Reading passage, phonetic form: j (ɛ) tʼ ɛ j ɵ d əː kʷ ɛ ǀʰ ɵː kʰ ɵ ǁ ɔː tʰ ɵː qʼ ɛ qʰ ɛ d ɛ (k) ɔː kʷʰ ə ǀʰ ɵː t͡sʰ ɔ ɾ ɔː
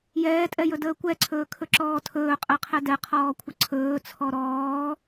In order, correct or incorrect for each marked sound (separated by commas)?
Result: incorrect, incorrect